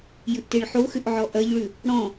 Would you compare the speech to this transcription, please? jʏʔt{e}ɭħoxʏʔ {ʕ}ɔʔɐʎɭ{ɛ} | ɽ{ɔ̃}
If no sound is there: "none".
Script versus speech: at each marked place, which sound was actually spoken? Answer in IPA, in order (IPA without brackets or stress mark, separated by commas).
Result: e, ʕ, ʏ, ɔ̃